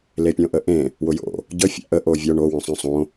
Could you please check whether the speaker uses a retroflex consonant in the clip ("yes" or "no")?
yes